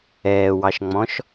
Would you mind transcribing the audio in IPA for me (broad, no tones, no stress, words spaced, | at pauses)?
ɛːwɑʃŋ͡mɔ̃ʃ